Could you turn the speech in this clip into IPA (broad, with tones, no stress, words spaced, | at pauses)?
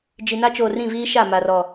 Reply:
d͡ʒi˨na˦t͡ʃoː˨rĩ˦˨ viː˦ʃa˦˨ ma˨rɔ˨